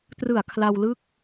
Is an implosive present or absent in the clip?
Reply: absent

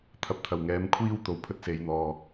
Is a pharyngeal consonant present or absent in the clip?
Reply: absent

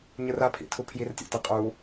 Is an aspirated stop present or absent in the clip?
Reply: present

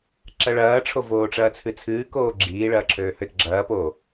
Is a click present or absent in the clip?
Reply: present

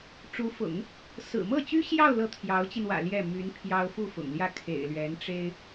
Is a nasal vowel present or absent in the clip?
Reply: absent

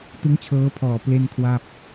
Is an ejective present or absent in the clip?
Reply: absent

